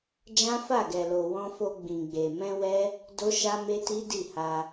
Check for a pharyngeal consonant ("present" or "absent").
absent